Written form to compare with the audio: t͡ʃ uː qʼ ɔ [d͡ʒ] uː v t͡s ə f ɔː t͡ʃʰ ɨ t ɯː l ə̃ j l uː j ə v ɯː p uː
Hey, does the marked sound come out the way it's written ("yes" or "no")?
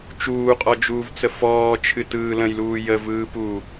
yes